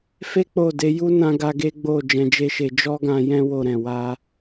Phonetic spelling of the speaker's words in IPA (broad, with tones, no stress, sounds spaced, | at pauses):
f e˦ k͡p o˦˨ d e˧ j u˦ n ã˦ ɡ a˦ ɡ e˦ ɡ͡b o˦˨ d͡ʒ ɛ̃˧ d͡ʒ e˦ ʃ e˧ d͡ʒ ɔ˦ ɡ ã˧ j ɛ̃˦ w o˦˨ ɾ ɛ̃˨ w a˧